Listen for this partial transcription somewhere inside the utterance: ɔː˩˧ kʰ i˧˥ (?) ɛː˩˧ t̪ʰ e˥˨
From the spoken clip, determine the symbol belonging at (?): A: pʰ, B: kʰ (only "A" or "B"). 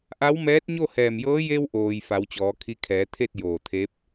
B